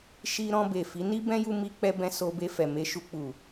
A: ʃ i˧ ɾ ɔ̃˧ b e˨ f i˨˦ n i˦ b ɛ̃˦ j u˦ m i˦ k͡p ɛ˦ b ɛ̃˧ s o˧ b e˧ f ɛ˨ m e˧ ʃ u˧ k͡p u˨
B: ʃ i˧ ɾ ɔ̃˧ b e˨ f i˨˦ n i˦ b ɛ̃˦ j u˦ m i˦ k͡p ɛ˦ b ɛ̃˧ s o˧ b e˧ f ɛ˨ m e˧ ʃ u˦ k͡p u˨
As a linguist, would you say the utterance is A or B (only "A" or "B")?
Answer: A